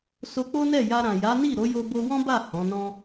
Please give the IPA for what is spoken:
s o˧ k͡p o˦ n ɛ˦˨ j a˧ ɾ ã˨ j a˨˦ n i˦˨ ɾ o˨˦ j o˧ b o˧ w ɔ̃˦ b a˦˨ h ɔ̃˨˦ n ɔ̃˦

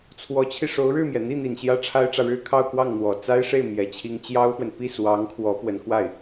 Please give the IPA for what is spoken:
t͡sʰ w ɔ˧˥ t͡ɕʰ i˧ ʂ o˧˥ ʊ̯ ɻ ɻ̩˥˩ m j ɛ˩ n̪ i˥˩ n̪ i˨˩ n ɕ j ä˥ ʈ͡ʂʰ a˥ ɪ̯ ʈ͡ʂ ä˨ ɻ ɻ̩˥˧ kʰ ɑ˥˧ ʊ̯ k w ɑ˥˩ ŋ n̪ w ɔ˨˩ t͡s a˥ ɪ̯ ʂ e˥˩ ɪ̯ m j ɛ˧˥ t͡ɕʰ i˥ ŋ t͡ɕ j ɑ˥ ʊ̯ x w ə˨ n p i˥˩ s w ɑ˧˥ ŋ kʰ w ɔ˧˥ p w ə˧˥ n k w a˥˩ ɪ̯

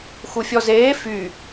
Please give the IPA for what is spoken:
x u fʲ ɔ z eː f y

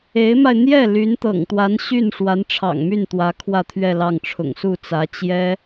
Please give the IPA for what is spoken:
e˧˥ ɪ̯ m a˧ ɪ̯ n̪ j ɛ˥˩ l y˧˥ n t̪ ɤ̰˨˩ ŋ t̪ w a˧˥ n ɕ y˥˩ n ʂ w a˧˥ n ʈ͡ʂʰ ɑ̰˨˩ ŋ m y˥˩ n t̪ w ä˧˥ kʰ w ä˥˧ t̪ʰ ɥ ɛ˥˧ l ɑ˥˩ ŋ ʈ͡ʂʰ ʊ̰˨˩ ŋ s u˥˩ t͡s ä˧˥ t͡ɕ j ɛ˥

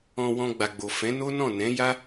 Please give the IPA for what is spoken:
ɔ̃˧ w ɔ̃˧ ɡ͡b a˨ ɡ͡b o˨ f ɛ̃˨˦ n o˦ n ɔ̃˦˨ n ɛ̃˨˦ j a˦

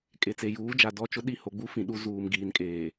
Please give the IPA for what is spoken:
kʼ e˨ t͡s e˨ j uː˨˦ d͡ʒ a˨ d ɔ˦˨ t͡ʃ ʊ˦ ɗ i˦˨ h o˨ ɡ͡b u˦ f ĩ˨ ɗ u˦ z uː˨ m ɡ iː˨ n kʼ eː˨

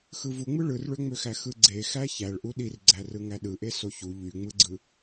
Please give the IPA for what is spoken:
x ɯ v u ŋ͡m ɯ ɭ ɯ r ɭ ø ŋ͡m ø x æ x ɯ ɡ͡ǀ e x æ ç æ ɭ ʔ u ɗ i r ɡ͡ǀ æ r ɯ ŋ æ ɗ ɯ ʔ e s o ç u ʎ y ŋ͡m ɯ ɡ͡ǀ ɯ

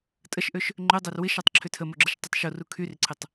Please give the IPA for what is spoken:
tʼ ə ʃ ʔ ø ʃ | ŋ͡ǃ ø dˤ œ r w ɪ ʃ ɔ tˤ ǁʰ ʏ tʰ ə m o ɡ͡ǁ ə ʃ tˤ ə tˤ ʃ o r u kʰ y r ǀʰ ɪ tˤ

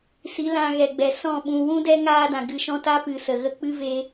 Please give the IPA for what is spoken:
s i˨˦ l ã˧ ɣ ɛ˨ ɡ͡b ɛ˨ s ɔ̃˦˨ ɓ ũ˨ w ũ˦ d ɛ˦ ŋ aː˦ d ã˨ ɡ ɨ˧ ʃ ɔ̃˦ t a˦ p ɨ˨ s ə˨ ɣ ə˦˨ k͡p ɨ˦ v e˧

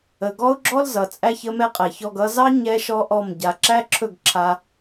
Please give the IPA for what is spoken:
ə˨ ɡ ɔ˦ ʊ̯ ɡ͡ǁ ɔ˦ l z ʌ˨ t͡sʼ æ˧ ç ə˧ m ɛ˦ qʼ ɛ˨ ç ɔ˧ ɡ ʌ˧ z ɑ˦ ɲ ɛ˦ ʃ ɔ˦ ʔ ɔ˦˨ m ɟ a˨ ǁ æ˦ ǁʰ ɵ˦˨ ɡ ǁʰ a˧

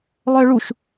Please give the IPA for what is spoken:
lˠ œ ɭ u ʃ

